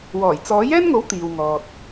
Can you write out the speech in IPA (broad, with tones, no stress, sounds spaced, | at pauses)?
w ɔː˨˩ j t͡s ɔː˨˥ j ɛː˥ n ŋ o˨˥ w t̪ iː˨ w ŋ ɔː˨ t̚